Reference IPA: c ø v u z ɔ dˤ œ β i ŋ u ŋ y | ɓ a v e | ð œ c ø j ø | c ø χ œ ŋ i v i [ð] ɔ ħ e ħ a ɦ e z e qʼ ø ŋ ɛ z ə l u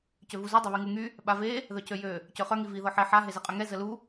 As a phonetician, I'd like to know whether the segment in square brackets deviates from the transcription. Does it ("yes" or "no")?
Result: no